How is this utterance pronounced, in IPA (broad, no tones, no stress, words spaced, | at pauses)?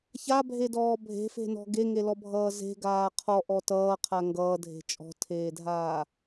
çabʱedɔː bʱe̤fe̤nɔ̤ ɡeŋelɔbʱʌː ze̤ɡaː qʰɔʔɔ tʌːqʰa ŋɡʌːdʱe̤ t͡ʃʼɔ̤tʰeːdʱaː